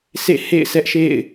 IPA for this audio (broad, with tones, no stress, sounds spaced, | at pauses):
s ḛ˦˨ h ḛ˦˨ ɪ̯ s ɛ˦ ʔ ʃ ḛ˦˨ ɪ̯